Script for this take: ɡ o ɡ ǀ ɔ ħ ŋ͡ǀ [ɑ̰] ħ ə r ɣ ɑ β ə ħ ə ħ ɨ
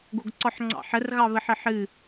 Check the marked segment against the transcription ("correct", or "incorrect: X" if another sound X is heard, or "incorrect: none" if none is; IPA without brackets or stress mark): correct